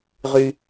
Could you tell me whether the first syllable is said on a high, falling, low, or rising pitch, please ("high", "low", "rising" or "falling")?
high